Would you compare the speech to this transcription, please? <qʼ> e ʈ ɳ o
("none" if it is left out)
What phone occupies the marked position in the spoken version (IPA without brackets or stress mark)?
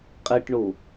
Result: qʼ